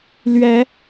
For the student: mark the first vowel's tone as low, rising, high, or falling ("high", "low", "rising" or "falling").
rising